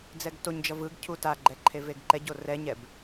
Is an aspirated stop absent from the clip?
no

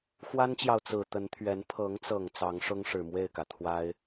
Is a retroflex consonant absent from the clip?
no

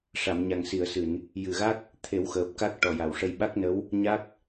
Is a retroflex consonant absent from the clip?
no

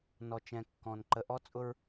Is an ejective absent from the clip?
no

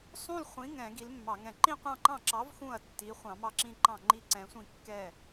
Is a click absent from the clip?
no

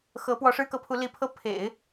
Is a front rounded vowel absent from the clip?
yes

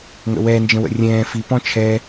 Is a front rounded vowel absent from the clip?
yes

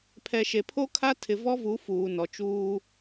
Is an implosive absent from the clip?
yes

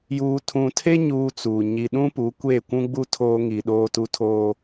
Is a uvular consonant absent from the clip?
yes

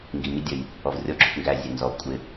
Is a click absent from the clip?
no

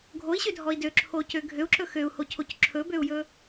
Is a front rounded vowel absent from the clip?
no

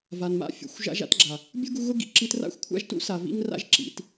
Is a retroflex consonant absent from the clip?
yes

